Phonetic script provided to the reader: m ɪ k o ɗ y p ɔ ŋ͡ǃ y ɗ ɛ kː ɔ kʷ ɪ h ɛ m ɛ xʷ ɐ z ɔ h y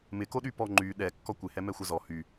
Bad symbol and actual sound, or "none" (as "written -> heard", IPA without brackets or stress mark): none